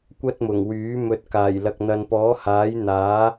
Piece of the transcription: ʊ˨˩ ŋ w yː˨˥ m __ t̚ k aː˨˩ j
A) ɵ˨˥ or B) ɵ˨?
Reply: A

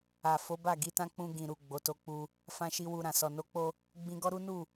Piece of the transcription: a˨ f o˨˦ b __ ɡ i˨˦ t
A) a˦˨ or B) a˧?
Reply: A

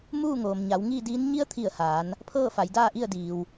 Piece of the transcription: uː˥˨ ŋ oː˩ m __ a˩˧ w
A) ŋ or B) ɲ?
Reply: B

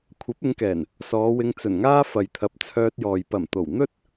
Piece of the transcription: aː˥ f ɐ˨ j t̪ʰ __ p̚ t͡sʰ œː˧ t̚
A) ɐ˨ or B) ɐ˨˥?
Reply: B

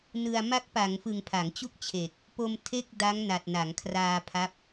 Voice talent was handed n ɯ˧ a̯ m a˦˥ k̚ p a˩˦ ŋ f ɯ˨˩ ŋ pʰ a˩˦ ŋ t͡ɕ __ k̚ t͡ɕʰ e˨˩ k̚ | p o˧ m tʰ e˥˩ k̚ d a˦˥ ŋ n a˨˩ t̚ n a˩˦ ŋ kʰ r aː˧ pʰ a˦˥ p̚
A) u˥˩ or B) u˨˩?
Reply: A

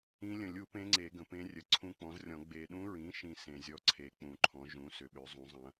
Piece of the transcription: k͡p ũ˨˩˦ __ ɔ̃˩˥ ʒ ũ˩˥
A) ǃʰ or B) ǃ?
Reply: A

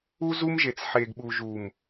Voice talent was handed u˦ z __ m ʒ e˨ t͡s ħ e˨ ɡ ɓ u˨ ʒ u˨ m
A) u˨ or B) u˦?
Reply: B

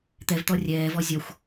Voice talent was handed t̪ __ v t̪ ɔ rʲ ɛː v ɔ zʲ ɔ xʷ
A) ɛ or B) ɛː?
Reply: A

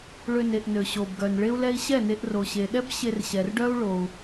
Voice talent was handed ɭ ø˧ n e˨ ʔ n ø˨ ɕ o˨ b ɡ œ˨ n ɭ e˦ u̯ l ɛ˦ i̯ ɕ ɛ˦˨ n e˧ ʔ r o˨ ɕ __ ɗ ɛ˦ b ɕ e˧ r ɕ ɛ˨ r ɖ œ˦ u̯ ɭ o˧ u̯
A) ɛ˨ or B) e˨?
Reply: B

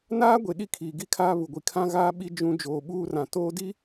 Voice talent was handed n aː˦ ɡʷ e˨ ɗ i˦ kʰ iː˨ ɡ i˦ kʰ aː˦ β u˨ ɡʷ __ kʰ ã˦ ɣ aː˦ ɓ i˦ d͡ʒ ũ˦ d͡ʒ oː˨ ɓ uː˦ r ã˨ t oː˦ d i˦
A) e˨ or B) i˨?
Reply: B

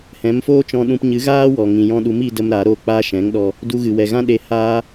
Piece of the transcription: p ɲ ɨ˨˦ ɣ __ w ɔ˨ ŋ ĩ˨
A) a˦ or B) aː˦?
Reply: B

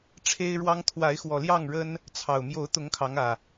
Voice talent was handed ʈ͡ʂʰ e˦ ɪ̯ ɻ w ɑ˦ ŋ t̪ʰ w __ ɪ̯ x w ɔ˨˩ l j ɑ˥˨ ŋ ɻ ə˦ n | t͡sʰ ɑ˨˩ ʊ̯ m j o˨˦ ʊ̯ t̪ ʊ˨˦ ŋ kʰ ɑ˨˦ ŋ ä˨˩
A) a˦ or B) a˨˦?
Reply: B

